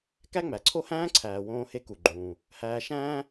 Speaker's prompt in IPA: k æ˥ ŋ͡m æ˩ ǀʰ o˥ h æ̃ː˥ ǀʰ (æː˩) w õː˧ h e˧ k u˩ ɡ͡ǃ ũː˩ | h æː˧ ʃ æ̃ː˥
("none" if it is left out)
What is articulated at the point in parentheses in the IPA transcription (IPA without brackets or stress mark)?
æː˩